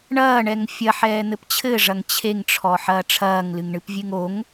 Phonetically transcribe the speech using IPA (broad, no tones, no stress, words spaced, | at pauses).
ɳɐːɳɛŋ fʲɐħɛːn̪ɘp t͡ɕʰɘʐɐŋ t͡ɕʰeŋʈ͡ʂʰɔħɐː ʈ͡ʂʰɐːŋlɨŋɳɨpvʲɨŋ oŋ